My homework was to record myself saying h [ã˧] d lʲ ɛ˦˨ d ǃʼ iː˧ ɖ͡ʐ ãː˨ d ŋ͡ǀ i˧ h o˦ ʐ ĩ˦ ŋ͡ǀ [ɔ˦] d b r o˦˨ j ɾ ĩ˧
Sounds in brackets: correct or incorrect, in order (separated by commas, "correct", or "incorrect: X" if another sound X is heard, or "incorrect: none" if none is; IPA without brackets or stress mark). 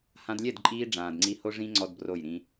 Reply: correct, correct